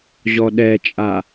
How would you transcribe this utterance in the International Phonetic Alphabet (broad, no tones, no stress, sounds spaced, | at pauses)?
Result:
ʑ ɔ ɗ ɛ t͡ʃʼ a